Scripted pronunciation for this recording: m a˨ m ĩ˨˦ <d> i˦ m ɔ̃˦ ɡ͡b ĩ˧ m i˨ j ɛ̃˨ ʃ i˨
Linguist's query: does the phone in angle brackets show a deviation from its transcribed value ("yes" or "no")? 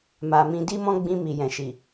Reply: no